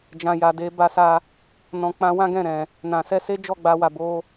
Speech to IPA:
d͡ʒ ã˨ j a˨ d e˧ b a˧ s a˧ | n ɔ̃˨ k͡p ã˧ w ã˦ ɡ ɛ̃˦˨ ɾ ɛ̃˨ | n ã˨ s ɛ˧ s e˦ d͡ʒ ɔ˦˨ ɡ͡b a˧ w a˨ b o˧

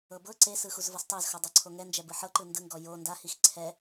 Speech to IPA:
ɤ b ɤ ǀ e s ɯ x u z v ɤ s tˤ ɛ z x o dˤ e ǀʰ o ŋ ɛ n d͡ʒ ɛ b ɯ ħ ɤ ǃ ɯ n d ɯ ŋ ɡ ɔ j o n d a h i x ǀʰ ɛ

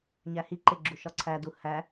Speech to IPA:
ɲ æ h i ǃ e ɡ͡ǁ u ʃ ɒ ǀʰ æ d u h æ

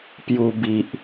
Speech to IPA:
p j u˧ b i˨ ʔ

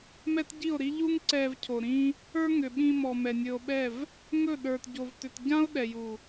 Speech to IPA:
m ɛ˦ t ɟ i˦˨ o̯ ɾ i˦ ʎ u˦ ŋ ǀ ɛ˧ v cʰ o˨ ɾ ĩ˦ | ə˞˦ ŋ ʏ˨ ɓ ĩ˧ m ɔ˨ m ɛ˨ nʲ ɵ˧ o̯ ɓ ɛ˦˨ v | ŋ ɵ˦˨ ɗ ə˞˨ t ɟ o˨ v t ʏ˨ t ɟ ã˦ o̯ ɗ ɛ˨ j u˨

